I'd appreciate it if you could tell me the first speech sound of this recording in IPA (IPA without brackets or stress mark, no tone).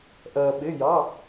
ʔ